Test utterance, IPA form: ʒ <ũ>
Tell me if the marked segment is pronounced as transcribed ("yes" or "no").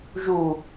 no